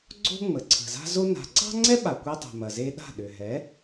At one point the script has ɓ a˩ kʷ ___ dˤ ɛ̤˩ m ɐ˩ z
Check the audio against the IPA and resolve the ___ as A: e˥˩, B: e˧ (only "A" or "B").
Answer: B